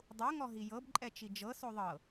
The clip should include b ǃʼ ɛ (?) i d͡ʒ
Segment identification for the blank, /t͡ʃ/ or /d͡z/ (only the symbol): t͡ʃ